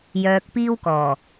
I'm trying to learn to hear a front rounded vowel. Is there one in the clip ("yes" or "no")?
yes